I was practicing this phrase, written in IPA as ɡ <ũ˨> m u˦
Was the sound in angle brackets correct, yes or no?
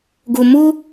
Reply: no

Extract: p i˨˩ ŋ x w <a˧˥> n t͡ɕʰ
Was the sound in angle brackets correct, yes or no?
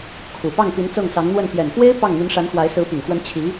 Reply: no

